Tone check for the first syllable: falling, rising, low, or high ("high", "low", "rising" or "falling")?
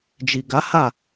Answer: low